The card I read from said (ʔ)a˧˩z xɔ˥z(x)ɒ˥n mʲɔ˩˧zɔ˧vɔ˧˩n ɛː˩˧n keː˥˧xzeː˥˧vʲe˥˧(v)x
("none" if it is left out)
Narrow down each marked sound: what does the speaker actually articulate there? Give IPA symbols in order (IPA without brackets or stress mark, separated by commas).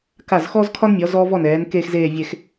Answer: k, kʰ, none